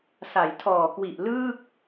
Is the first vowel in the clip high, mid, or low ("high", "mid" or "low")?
low